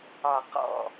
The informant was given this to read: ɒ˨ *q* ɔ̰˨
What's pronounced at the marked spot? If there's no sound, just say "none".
q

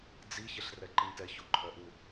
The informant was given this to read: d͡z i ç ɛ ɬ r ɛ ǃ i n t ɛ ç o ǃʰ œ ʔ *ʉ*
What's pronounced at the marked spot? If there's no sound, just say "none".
u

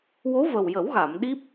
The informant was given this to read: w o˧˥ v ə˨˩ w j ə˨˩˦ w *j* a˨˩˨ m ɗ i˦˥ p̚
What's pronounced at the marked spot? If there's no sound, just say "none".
ɣ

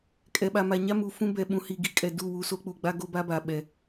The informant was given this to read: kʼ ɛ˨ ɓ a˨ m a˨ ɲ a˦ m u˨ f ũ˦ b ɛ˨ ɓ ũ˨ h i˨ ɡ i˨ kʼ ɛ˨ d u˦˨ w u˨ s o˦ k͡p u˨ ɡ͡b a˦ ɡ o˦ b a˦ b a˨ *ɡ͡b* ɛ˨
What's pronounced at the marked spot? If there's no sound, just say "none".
ɓ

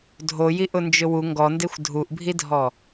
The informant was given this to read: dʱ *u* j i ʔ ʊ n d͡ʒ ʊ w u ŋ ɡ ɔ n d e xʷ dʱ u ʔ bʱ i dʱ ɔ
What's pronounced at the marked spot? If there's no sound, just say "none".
o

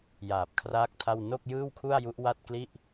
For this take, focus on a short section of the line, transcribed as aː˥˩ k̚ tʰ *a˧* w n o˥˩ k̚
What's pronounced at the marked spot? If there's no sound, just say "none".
a˥˩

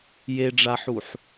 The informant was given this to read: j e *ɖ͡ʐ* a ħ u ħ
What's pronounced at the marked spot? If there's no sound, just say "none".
ɖ͡ʐ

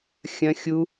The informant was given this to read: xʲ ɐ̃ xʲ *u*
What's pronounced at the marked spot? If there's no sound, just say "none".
u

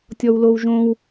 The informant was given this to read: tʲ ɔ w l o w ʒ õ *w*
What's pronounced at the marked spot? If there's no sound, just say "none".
w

